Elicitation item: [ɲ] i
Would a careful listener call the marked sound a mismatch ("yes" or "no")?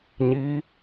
no